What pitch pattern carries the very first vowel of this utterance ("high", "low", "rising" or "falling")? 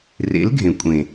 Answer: rising